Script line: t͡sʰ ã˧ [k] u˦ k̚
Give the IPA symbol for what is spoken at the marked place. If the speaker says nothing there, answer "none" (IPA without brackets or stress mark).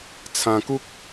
k